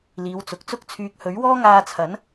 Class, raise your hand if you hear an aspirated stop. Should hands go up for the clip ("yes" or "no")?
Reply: yes